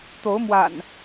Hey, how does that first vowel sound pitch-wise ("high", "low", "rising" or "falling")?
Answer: rising